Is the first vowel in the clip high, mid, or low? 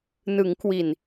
high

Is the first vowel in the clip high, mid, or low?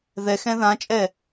mid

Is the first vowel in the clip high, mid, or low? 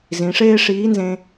high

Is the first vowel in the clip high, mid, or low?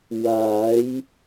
low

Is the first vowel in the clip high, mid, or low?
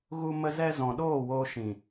high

